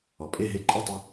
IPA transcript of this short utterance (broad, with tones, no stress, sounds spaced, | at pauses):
ɔ˩ pʼ e˥˩ ɦ e˧ ǃʼ ɨ˥˩ tˤ u˧